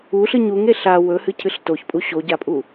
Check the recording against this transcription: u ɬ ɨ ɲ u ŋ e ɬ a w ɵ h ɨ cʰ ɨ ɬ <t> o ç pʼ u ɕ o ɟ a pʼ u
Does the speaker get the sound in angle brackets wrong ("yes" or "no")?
no